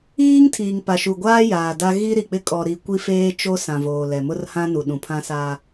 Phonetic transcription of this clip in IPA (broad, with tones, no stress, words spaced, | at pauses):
iː˦ŋ tʰiː˨ŋpa˨ʃu˨ɡʷaː˦ jaː˨da˦ ɣi˦ɾi˨ k͡pɪ˦ kʼɔ˨ɾi˨ kʷi˦feː˦ t͡ʃo˦ sã˨voː˨lɛ˨mʊ˦r hã˦nu˨ɗũ˨ pʰã˦sa˦